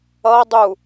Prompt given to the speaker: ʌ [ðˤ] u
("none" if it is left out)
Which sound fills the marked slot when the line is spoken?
dˤ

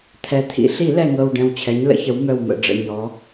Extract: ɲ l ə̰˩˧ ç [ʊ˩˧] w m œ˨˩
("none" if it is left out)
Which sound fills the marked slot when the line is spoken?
ə˩˧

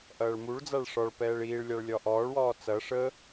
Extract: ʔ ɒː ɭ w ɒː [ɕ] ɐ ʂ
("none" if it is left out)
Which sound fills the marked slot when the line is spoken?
t͡s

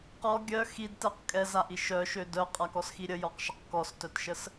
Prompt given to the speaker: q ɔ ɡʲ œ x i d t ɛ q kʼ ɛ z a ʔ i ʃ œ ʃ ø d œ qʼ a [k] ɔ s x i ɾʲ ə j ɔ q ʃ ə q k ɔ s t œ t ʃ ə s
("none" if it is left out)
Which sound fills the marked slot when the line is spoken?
k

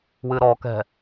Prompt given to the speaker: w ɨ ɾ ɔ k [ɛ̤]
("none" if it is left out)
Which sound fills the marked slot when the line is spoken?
ɛ̤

